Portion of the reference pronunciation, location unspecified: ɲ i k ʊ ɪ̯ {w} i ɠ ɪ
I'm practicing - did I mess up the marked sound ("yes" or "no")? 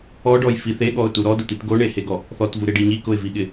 yes